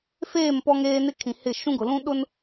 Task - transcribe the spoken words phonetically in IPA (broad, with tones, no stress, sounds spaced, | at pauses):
f eː˦˨ m p ɔ˦ ŋ eː˦ n ɪ˦ kʰ ĩ˨ h ɪ˦˨ ʃ ũ˦ ɡ ʊ˨ l ũ˦ ɗ ʊ˦ n